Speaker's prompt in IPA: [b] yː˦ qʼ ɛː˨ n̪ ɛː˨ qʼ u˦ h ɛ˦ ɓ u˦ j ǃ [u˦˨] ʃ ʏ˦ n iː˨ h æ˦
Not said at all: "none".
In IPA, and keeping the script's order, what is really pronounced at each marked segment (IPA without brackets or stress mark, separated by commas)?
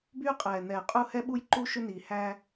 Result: b, u˦